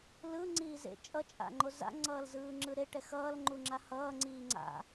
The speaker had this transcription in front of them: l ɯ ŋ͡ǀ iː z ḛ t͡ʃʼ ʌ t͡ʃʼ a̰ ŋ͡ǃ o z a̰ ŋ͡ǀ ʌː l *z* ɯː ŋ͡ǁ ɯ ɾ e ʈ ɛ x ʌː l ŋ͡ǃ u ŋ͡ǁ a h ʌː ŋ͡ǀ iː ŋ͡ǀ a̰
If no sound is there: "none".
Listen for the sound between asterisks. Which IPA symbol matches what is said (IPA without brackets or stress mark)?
z